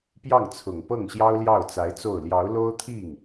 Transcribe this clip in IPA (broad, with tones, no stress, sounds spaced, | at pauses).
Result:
p j ɑ˥˩ ŋ t͡sʰ ʊ˨˩ ŋ p ɤ˥˩ ŋ ɕ j ɑ˥ ʊ̯ l j ɑ˥˩ ʊ̯ t͡s a˧˥ ɪ̯ t͡s o˥˩ ʊ̯ l j ɑ˧˥ ʊ̯ l o˥ ʊ̯ t̪ʰ i˥˩ ŋ